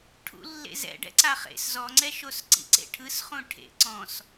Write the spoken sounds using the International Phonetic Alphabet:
ʈʰ ṵ lː ḛ z ɛ̰ ɖ ɛ̰ ǀ a χ ḛ s z ɔ ŋ͡ǀ ɛ ʃ o s ǀ ḭ ǀ ḛ ʈʰ ɯ s χ ũ ʈʰ ḛ ǀ ɔ̃ s

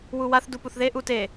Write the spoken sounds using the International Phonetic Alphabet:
w u w a θ d u p u θ ð e ʔ u t e

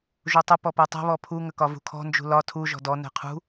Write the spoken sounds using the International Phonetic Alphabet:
ʒ u tˤ ə p ɔ p ɛ tˤ ɛ̤ β ɔ pʰ u ŋ ə k ɒ v ṳ kʰ ɔ̤ n d͡ʒ ṳ l ɒ tʰ u ʒ ɔ̤ d ɔ n ɛ̤ qʰ ṳ

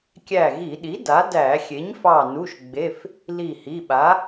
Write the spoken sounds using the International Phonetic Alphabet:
kʲ æ˧˩ ɣ i˧˩˧ ɗ i˩˥ d a˩˥ d æ˧˩˧ xʲ e˩˥ ɲ f ɑ˧˩ n u˩˧˩ ʃ ɡ͡b e˩˧˩ f | l i˧˩ h i˩˧˩ ɓ a˩˥

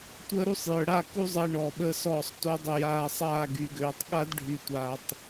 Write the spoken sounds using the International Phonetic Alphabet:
tʷ əː˦ ɾ u˦ sˤ j œ˨ ɽ a˦˨ k u˦ zˤ əː˧ ɳ ɔː˨ ɓ əː˧ s ɔː˦˨ sˤ t o˦ dˤ ə˦˨ j aː˧ sˤ aː˦˨ ɡ y˨ ɡ øː˨ tˤ ɠ a˦ d ɖʱ y˨ tʷ aː˨ tˤ

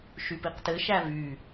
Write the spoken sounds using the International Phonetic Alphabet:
ʃ y p i q t ɘ ʃ æ v y

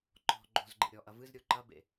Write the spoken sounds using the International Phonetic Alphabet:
ǃ ɔ̤ ɡ͡ǃ o̤ z ɡ͡ǃ ḛ ɾʲ ɔ ʔ ɐ v ɨ z ɾʲ o ǃ ɐ b ḛ

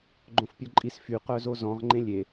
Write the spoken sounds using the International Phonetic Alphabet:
ɡ͡ǃ õ f pʲ ɔ ǃʼ i s f y q œ z o z ɔ̃ ʁ ŋ͡ǃ ẽ lʲ e

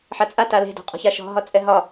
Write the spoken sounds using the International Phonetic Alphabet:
ħ a t͡sʼ a t a l e̤ d ɔ̤ qʼ ɔ̤ ç a ʃ ɔ̤ ɦ ɒ t͡sʼ ɛ ɦ ɒ

